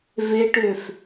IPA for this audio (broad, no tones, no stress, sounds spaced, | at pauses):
v e ʈ ø f